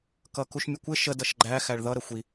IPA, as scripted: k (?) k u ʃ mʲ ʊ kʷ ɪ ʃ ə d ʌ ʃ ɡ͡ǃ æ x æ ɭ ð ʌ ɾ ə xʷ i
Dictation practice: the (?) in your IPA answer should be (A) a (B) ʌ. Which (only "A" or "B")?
B